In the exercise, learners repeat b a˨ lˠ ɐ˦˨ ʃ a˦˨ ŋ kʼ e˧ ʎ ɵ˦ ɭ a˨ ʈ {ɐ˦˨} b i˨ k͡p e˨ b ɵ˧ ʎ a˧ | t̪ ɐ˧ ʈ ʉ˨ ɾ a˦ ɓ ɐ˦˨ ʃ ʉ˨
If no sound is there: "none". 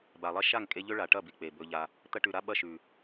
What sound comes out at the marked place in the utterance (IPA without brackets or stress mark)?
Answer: ɐ˦˨